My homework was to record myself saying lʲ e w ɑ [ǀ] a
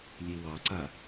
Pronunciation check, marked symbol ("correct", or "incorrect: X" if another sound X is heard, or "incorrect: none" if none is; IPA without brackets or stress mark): correct